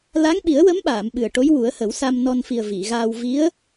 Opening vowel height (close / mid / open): open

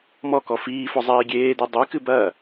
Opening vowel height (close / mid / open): mid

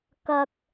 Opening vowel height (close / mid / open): open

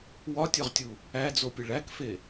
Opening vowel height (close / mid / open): open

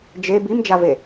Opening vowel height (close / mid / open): mid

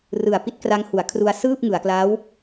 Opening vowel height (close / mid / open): close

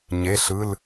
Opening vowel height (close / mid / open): mid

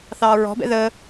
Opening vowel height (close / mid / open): open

